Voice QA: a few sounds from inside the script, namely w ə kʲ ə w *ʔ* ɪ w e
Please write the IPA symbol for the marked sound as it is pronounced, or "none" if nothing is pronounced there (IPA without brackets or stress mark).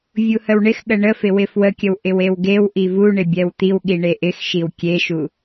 ʔ